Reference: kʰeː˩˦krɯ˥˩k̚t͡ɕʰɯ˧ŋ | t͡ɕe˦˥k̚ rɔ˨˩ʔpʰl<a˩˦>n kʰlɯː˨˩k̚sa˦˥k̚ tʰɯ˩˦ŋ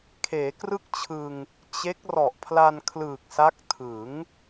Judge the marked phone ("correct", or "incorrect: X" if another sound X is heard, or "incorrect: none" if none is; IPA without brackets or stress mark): incorrect: a˧